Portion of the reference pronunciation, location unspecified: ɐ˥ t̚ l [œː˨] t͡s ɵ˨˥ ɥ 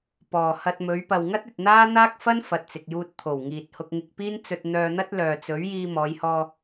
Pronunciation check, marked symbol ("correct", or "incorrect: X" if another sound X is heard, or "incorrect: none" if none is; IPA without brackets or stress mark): correct